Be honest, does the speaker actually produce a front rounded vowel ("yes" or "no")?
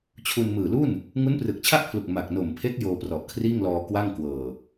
no